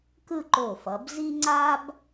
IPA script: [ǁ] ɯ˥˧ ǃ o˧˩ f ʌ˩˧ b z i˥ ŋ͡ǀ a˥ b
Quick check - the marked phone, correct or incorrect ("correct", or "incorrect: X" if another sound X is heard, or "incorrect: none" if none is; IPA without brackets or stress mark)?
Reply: incorrect: k